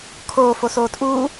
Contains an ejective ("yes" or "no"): yes